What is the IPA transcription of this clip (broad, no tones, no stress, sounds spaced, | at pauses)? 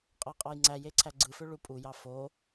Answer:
qʼ ɑ qʼ ɑ j ŋ͡ǀ æ j e ǀʰ æ ɡ͡ǀ ɯ f ø ɭ u pʼ u j ɑ f o